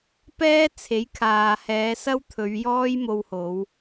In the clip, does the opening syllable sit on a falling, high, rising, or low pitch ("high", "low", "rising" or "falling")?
high